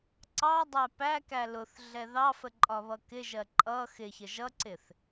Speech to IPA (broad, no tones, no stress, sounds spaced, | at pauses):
ǀ ɑ dˤ æ p æ k æ l ʊ θ ɮ ɛ ð ɑ f ə ǃʼ ɒ β ʌ k ɪ ʒ ɜ ǃʼ ʌ x ɪ ç ə ʒ ʌ ǀ ɪ θ